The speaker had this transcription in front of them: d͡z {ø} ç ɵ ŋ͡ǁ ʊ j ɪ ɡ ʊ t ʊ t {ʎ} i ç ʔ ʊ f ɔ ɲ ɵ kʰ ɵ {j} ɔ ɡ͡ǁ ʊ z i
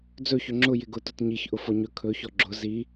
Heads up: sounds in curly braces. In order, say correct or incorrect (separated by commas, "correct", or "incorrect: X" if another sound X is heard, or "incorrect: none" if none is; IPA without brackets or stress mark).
incorrect: ɵ, incorrect: ɲ, incorrect: ç